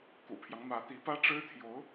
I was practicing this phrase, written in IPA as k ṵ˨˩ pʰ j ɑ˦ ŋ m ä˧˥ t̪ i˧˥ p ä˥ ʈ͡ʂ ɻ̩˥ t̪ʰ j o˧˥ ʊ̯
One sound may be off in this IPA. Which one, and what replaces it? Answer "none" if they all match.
none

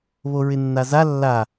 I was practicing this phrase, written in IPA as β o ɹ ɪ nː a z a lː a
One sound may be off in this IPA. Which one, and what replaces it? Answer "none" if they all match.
none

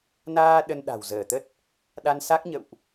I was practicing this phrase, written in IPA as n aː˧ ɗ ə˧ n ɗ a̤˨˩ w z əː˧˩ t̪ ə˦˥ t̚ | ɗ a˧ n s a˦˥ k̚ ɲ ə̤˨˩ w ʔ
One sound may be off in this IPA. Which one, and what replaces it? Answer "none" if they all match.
ə̤˨˩ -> ə̰˧˨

